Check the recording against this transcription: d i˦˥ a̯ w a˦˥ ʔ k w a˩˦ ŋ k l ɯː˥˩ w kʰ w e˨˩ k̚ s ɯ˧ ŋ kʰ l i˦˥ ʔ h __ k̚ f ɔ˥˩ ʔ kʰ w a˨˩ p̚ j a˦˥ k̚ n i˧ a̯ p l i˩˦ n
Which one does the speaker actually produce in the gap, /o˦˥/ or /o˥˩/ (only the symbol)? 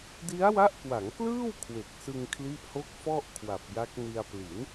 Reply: o˦˥